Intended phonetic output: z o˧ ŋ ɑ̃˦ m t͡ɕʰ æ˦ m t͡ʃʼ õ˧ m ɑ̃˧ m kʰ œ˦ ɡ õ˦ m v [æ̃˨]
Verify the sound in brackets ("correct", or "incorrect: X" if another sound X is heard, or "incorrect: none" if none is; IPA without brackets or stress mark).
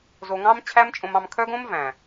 correct